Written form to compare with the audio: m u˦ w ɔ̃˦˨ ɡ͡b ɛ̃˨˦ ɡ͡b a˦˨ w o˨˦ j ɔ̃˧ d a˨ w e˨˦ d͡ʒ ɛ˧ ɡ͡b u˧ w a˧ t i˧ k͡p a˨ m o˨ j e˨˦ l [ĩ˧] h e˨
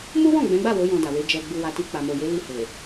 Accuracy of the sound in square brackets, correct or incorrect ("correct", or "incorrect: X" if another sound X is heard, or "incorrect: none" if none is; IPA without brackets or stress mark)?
incorrect: i˧